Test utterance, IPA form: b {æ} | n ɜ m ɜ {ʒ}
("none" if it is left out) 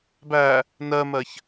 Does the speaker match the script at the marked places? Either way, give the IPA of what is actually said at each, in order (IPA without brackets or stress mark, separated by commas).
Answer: æ, ç